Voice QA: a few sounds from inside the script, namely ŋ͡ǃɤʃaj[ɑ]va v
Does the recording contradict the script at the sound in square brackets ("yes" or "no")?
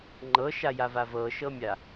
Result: yes